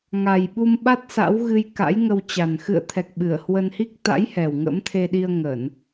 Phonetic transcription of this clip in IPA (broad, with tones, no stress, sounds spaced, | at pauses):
ŋ a˨˩ j ɓ u˧ m ɓ a˦˥ t̚ s a̰˧˥ w ɣ ɨ˧ j k a̰˧˥ j ŋ ə˧ w t͡ɕ a˨˩ n x ɨ̰˧˨ ə̯ t̪ʰ ɛ˨˩ k̚ ɓ ɨ˧˩ ə̯ h w ə˧ n h i˦˥ k̚ t̪ a̰˧˥ j h ɛ˨˩ w ŋ ə̰˧˥ m t̪ʰ e˧ ɗ i˧ ə̯ ŋ ə˧˩˨ n